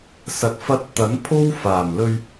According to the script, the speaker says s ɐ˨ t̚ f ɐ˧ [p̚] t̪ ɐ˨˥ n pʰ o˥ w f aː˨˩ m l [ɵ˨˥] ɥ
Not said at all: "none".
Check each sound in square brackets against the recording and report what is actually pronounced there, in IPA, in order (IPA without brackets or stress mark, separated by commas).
t̚, ɵ˧